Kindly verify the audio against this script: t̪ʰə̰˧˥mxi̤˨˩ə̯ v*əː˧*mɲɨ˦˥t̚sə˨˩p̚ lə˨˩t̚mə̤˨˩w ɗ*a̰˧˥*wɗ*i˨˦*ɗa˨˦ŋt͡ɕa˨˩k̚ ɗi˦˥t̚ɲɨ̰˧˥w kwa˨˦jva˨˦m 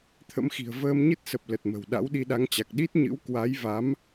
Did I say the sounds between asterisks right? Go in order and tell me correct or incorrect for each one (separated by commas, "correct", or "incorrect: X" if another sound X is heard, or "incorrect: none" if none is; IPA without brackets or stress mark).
correct, correct, incorrect: i˧